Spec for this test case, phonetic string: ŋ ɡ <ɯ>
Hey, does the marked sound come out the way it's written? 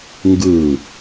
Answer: yes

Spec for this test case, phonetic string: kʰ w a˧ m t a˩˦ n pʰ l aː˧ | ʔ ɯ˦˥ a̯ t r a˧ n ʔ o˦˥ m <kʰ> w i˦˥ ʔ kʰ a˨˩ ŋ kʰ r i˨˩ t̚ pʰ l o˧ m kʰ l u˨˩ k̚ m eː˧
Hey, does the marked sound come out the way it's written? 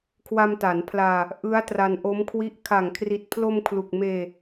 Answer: yes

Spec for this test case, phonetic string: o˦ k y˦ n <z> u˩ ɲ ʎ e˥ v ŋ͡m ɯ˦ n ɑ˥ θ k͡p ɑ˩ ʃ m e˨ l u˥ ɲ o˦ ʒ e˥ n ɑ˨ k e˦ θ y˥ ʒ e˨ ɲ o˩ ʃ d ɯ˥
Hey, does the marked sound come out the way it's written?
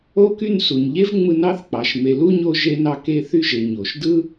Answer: no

